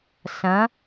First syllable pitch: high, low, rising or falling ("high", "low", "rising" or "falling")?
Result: rising